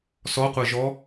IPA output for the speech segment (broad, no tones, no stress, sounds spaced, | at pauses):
s ɔ qʷ əː ʒ ɔ